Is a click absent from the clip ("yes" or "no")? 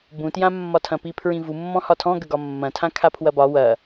yes